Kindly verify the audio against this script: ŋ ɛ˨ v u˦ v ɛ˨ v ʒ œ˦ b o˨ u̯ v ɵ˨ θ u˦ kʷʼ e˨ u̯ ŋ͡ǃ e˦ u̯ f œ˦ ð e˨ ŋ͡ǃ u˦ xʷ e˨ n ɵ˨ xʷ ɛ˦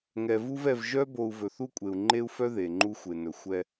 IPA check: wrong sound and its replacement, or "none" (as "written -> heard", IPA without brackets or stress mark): none